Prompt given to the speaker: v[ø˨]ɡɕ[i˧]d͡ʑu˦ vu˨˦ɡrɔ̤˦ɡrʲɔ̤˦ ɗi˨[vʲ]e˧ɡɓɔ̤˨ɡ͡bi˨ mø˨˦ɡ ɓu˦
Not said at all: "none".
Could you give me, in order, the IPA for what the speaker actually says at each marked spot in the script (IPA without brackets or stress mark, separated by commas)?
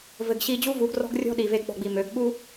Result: ɘ˨, i˧, v